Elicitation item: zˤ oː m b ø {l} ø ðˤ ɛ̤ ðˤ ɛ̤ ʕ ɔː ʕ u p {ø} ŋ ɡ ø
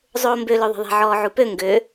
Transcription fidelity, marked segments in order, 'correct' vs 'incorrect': correct, correct

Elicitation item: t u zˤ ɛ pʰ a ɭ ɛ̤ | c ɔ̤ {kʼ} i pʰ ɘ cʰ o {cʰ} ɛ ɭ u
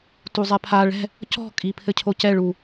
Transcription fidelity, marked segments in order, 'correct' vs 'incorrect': correct, incorrect: c

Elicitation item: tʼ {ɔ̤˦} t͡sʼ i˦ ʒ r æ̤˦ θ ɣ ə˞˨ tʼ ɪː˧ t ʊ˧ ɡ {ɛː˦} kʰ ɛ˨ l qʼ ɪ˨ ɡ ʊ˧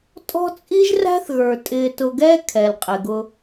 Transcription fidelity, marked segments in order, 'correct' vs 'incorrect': correct, correct

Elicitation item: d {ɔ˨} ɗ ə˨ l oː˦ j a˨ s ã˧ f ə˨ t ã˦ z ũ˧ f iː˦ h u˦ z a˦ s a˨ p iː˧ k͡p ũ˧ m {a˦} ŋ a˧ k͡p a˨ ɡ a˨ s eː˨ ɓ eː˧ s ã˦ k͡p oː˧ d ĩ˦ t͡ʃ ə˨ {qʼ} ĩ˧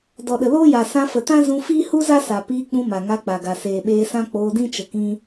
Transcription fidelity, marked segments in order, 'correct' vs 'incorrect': correct, incorrect: a˨, incorrect: k

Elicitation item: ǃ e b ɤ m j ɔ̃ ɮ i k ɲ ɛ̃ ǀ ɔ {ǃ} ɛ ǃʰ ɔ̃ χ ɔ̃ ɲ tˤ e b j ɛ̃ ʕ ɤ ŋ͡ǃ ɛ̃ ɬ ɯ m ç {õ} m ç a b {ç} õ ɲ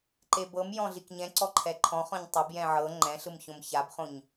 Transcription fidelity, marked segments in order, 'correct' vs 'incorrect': incorrect: ǃʰ, correct, incorrect: χ

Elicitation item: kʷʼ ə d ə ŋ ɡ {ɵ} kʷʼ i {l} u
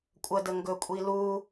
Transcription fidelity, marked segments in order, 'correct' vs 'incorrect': correct, correct

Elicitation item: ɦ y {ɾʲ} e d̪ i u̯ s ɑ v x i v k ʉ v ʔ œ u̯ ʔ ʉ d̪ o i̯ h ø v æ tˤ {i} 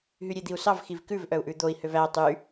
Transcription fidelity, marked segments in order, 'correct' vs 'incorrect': correct, incorrect: y

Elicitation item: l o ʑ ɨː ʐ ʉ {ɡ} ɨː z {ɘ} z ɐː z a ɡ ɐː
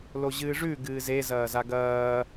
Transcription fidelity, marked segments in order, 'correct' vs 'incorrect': correct, incorrect: e

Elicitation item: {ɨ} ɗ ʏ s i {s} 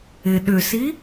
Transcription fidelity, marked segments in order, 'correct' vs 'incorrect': incorrect: ɪ, incorrect: none

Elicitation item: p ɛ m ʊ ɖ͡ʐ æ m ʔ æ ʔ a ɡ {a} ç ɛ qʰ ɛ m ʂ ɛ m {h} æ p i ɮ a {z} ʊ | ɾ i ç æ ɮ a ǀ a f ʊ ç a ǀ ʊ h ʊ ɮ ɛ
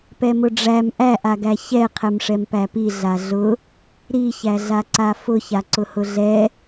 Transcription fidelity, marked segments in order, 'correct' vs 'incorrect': incorrect: æ, incorrect: p, incorrect: ɮ

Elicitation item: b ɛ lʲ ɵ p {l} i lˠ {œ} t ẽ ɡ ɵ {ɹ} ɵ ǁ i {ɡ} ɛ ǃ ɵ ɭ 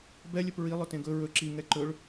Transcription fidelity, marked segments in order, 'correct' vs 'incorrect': incorrect: ɹ, incorrect: ɵ, correct, incorrect: ŋ

